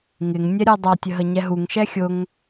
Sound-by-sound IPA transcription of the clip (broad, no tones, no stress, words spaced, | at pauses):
ŋɪŋnʲɛ ɾʲə˞dˤɑtʲə ɦəɲɛɦuŋʃɛ xʲʊŋ